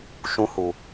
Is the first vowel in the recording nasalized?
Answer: yes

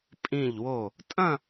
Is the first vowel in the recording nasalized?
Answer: yes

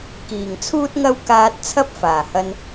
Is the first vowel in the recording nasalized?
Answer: no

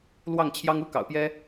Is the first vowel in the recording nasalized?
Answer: no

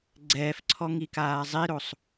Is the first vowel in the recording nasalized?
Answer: no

